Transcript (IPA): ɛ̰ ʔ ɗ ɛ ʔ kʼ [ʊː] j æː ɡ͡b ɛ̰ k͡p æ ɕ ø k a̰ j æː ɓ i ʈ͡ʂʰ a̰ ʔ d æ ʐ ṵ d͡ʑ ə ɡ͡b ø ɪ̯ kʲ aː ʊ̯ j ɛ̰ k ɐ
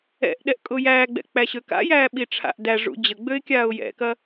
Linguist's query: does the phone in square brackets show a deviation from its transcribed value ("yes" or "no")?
no